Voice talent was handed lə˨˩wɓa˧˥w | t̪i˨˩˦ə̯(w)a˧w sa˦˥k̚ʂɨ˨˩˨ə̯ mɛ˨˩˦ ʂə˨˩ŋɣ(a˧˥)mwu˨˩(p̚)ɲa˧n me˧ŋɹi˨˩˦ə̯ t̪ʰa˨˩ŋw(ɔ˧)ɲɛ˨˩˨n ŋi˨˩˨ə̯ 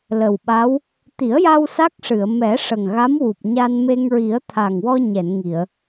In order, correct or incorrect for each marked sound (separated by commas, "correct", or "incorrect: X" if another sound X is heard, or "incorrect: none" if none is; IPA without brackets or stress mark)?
incorrect: j, correct, correct, correct